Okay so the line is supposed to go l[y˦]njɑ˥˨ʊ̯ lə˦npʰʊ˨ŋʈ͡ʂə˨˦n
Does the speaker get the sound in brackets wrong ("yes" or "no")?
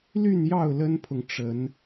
yes